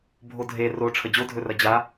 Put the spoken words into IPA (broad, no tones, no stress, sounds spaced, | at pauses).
bʱ o dʱ e r o ʈ͡ʂʰ ə d͡ʑ o dʱ ɵ r ɐ d͡ʑ a